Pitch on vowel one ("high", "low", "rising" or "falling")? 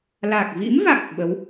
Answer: low